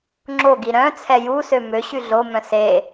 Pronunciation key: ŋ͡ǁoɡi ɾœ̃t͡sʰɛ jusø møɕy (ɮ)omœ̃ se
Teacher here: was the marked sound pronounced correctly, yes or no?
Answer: yes